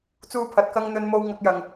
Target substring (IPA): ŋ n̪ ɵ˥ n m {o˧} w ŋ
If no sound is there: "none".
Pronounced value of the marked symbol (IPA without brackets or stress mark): o˥